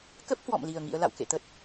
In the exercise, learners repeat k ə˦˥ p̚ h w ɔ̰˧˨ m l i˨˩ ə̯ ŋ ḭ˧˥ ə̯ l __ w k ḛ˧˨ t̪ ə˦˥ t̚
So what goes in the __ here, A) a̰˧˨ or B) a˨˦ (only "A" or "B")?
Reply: A